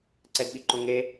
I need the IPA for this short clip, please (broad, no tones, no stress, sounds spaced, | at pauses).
ǀ ɛ d ɓ i ǃ õ ŋ e